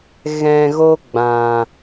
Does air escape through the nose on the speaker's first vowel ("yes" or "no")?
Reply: yes